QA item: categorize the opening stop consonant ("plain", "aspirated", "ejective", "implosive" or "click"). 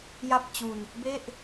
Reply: plain